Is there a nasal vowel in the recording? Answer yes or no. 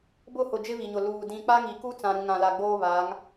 yes